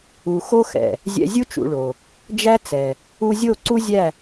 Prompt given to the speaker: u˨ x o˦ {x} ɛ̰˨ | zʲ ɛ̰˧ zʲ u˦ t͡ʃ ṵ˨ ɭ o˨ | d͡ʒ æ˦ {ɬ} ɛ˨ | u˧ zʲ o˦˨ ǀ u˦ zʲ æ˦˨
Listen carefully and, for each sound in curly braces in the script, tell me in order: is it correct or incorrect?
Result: correct, incorrect

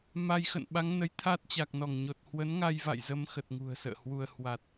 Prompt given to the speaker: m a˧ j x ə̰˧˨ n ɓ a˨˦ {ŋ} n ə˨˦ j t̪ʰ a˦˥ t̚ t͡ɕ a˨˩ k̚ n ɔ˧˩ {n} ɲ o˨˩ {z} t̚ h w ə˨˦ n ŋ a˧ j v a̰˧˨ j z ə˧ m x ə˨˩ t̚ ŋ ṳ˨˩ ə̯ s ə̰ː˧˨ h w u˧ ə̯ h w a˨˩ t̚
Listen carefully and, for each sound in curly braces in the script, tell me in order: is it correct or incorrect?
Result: correct, incorrect, incorrect

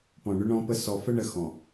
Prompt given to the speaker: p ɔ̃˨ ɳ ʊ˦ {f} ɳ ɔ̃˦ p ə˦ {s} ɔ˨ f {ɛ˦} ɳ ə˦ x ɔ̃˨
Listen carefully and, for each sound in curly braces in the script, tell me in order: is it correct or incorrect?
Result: incorrect, correct, incorrect

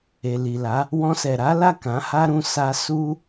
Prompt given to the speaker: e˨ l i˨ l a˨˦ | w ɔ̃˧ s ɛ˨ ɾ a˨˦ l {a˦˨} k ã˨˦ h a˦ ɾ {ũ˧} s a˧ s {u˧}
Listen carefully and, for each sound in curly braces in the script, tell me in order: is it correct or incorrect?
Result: correct, incorrect, incorrect

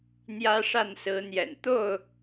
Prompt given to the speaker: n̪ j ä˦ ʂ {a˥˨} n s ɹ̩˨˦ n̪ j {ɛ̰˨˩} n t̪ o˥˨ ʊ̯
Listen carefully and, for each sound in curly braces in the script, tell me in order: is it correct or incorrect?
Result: correct, correct

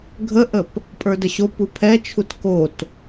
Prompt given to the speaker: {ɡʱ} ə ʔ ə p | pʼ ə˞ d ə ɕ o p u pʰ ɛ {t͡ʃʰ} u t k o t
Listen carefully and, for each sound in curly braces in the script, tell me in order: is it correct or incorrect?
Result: correct, correct

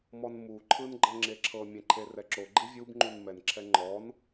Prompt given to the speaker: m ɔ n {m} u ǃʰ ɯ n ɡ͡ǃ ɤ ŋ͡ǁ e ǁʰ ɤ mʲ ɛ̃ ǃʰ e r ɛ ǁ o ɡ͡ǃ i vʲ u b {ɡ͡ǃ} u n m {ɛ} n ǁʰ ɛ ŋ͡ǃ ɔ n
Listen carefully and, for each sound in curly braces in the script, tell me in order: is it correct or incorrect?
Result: correct, incorrect, correct

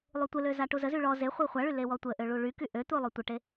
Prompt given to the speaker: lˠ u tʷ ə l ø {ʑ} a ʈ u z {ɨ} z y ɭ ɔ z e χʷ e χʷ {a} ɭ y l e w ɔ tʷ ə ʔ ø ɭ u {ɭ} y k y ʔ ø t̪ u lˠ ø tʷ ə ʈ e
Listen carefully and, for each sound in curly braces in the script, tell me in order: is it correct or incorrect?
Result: incorrect, incorrect, correct, correct

